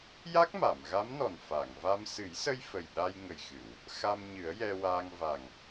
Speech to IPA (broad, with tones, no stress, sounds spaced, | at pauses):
j a˦˥ k̚ m a˨˩˨ m ɣ a˧˥ m n ɔ˨˩ n f a˨˩˨ ŋ v a˧ m s ɨ˨˩˦ j s ə˧ j f ə˨˩ j ɗ a˧ j ŋ ə˨˩ j x ɨ˨˩˨ w | x a˧ m ɲ ɨ˨˩˦ ə̯ j ɛ˧ w aː˧ ŋ v a˨˩ ŋ